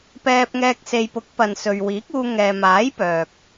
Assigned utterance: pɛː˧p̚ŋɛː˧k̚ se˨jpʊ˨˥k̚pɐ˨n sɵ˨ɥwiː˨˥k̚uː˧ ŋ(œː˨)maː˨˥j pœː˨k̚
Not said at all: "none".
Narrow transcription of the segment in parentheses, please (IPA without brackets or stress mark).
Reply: ɛː˨